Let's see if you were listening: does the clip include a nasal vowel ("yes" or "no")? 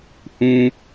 yes